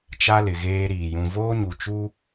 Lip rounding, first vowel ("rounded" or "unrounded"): unrounded